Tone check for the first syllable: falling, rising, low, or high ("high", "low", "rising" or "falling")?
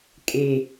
low